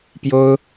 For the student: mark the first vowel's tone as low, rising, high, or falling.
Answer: high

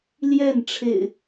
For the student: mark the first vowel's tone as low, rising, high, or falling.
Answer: falling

